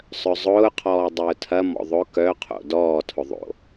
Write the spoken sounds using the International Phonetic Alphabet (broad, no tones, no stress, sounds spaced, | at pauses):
sˤ œ zˤ ʊː qʰ ɔː dˤ ʊː tʰ ɐ m ɔ̰ ðˤ ʊ k œ qʰ o̰ d ɔː tʰ ʊ ðˤ o̰